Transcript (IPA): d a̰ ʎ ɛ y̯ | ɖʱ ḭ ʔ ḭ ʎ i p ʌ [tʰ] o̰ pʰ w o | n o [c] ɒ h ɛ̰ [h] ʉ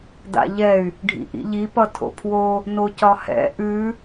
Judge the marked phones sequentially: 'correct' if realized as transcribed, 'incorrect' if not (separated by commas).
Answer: correct, correct, incorrect